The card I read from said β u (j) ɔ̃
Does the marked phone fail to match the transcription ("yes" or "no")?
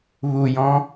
no